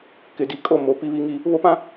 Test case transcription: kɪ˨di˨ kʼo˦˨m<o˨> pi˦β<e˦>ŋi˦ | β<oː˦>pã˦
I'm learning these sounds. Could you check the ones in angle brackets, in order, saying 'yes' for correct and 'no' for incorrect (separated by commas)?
yes, no, no